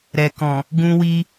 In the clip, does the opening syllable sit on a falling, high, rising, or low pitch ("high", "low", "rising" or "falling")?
low